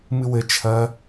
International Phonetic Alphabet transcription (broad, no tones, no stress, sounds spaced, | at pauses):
m ɨ w ɘ t͡ʃʰ ɐ